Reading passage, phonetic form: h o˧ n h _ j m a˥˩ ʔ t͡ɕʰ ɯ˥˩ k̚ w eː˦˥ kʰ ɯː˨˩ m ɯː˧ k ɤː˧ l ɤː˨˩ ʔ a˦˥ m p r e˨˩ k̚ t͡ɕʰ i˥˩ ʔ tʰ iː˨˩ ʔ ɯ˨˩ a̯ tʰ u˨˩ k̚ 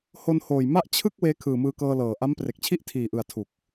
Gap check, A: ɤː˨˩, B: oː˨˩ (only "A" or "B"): B